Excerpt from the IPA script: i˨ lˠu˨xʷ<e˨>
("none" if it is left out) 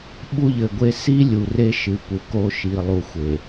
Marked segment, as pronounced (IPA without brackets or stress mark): e˨